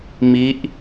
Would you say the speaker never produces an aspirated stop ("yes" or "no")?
yes